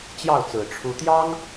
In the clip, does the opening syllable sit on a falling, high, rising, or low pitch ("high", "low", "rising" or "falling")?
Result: falling